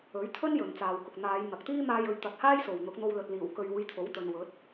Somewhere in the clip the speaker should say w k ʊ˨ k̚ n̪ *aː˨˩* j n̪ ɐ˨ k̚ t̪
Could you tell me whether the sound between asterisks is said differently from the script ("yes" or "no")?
yes